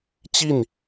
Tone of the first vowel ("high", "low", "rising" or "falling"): falling